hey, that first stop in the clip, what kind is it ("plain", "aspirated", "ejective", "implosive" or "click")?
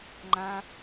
click